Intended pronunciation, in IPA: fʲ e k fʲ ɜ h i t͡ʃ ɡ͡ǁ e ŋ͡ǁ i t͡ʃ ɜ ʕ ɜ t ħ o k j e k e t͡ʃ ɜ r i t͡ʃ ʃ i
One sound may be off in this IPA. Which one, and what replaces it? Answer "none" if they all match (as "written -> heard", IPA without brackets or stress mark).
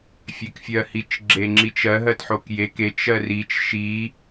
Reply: ʕ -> ɦ